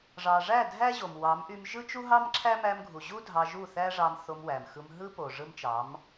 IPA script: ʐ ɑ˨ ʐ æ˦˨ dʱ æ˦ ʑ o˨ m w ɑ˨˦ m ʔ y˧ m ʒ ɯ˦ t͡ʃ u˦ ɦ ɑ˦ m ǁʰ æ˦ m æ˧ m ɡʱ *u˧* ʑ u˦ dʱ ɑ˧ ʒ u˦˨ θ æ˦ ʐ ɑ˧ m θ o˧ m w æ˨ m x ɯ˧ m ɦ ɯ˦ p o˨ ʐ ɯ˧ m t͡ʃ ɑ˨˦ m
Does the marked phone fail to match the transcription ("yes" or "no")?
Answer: yes